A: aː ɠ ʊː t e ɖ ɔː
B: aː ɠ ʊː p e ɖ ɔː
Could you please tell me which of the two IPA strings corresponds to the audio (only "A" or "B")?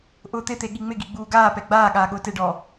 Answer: A